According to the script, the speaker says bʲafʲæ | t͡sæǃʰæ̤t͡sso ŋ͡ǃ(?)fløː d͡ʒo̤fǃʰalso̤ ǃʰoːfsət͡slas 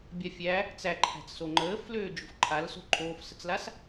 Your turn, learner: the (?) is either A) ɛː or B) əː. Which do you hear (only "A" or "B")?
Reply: B